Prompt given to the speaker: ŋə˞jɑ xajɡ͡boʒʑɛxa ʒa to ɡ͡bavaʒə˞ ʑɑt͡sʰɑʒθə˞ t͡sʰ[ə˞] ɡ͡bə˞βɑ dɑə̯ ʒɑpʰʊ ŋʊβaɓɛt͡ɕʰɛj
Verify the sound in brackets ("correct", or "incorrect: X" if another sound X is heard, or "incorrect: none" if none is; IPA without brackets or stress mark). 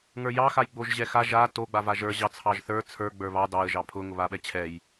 correct